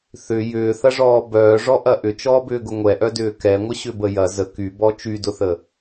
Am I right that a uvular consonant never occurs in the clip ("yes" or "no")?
yes